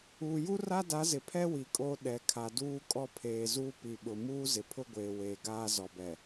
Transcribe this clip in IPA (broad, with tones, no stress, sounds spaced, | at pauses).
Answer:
uː˨ j u˦ r a˦ d a˨˦ z ɪ˨ pʰ ɛ˦ w i˨ kʼ oː˦ ɗ ɛ˨ kʰ a˨ d uː˦ kʼ ɔ˦ pʰ eː˨ z uː˦ p i˨ ɓ ʊ˨ m uː˦ z ɪ˨ pʰ ʊ˦ ɡʷ eː˨ w eː˨ ɡ aː˦ z ɔ˨ b ɛ˨